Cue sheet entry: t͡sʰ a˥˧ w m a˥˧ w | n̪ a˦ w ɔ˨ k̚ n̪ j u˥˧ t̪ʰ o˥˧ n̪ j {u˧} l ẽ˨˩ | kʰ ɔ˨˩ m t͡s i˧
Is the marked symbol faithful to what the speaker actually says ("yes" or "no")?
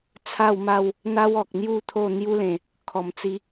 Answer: no